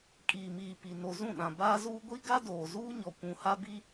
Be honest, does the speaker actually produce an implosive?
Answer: yes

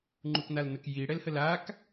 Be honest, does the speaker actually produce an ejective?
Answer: no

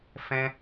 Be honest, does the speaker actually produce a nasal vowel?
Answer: yes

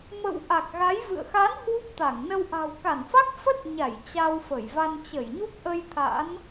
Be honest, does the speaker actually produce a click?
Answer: no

